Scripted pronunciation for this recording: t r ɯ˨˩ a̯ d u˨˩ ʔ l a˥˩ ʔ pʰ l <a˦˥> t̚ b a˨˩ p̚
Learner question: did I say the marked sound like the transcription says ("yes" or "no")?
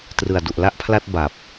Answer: no